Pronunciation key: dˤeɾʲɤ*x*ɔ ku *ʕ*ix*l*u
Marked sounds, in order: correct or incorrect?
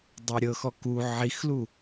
correct, correct, correct

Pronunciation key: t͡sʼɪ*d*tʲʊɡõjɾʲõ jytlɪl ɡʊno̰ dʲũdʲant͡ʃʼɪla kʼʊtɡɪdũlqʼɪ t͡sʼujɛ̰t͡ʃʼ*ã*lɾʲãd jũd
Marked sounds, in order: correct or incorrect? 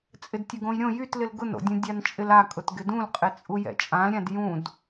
correct, correct

